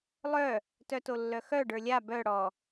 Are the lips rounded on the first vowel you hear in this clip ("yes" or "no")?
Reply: yes